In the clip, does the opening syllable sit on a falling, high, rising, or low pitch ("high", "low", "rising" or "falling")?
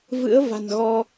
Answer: rising